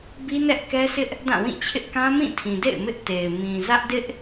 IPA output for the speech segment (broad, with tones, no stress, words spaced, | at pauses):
bi˦nɛ˦ʔkɛ˦sɪ˦ʔ | dã˦˨wĩ˦˨t͡ɕʰɪ˦ʔ kã˦mĩ˦˨tʰĩ˨dḛ˦˨ɪ̯ mɪ˦ʔ te˨ɪ̯ mĩ˨ zä˦ʔdɪ˦ʔ